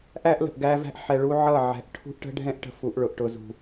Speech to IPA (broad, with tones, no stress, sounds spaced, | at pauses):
ʔ æ˦ ʔ l ə̤˨ ʔ ɡ æ˦ v æ̤˦ ʔ ħ ɛ˨ ɭ u˦ ʕ ʌ˦˨ ʕ ɛ̤˨ ʔ ʈʰ ṳ˦ ʔ ʈ ə̤˦ ɖʱ ɛ̃˦ ʔ ʈ ə̤˨ f u˨ ʔ ɭ ʊ˨ ʔ ʈ ʊ˨ z ṳ˨